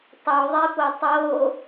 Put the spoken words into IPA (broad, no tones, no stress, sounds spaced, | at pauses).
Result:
tˤ o ðˤ e p o tˤ o